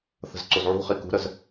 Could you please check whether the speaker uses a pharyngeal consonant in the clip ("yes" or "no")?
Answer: yes